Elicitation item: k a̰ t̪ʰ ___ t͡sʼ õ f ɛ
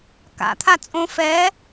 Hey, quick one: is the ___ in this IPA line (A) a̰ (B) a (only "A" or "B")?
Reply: B